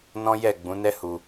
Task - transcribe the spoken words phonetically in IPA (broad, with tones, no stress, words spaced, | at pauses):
nɔ̃˦jɛ˦˨ ɡ͡bũ˨˦nɛ˦ hu˧